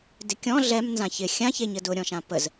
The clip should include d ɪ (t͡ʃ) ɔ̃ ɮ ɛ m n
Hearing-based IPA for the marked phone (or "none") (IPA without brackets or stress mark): kʲ